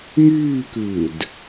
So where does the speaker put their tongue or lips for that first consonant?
velum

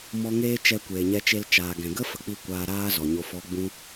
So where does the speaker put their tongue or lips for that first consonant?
lips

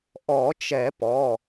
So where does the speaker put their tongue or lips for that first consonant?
throat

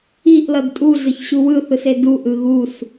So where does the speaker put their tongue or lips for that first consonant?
throat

